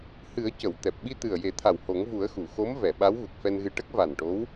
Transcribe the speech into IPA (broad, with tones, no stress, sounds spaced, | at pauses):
h ɨ˨˩˦ ə̯ c ə˨˩˨ w t̪ ɛ˨˩ p̚ ɓ i˧ t̪ ɨ˨˩ ə̯ j e˨˩˦ t̪ʰ a˨˩ w h o˨˩˦ ŋ v u˨˩˦ ə̯ x u˨˩˨ x o˧˥ m v ɛ˨˩˨ ɓ a˧˥ w ɣ u˨˩ k̚ f ɛ˧ n ɣ ɨ˧ ʈ ə˦˥ k̚ v a˨˩ n ʈ o˧˥ w